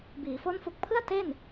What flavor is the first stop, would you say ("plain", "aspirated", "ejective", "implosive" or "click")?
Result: plain